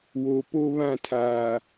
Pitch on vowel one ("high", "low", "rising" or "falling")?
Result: low